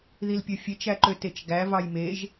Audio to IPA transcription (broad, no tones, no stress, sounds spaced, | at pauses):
ð i l pʲ ø fʲ e t͡ʃ æ ǃ ø t e t͡ʃ ɡ æ v ɑ j m e ʒ